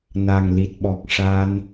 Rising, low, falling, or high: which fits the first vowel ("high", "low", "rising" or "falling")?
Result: low